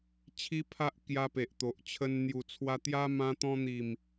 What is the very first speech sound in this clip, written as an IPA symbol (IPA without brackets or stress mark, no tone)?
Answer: t͡ɕʰ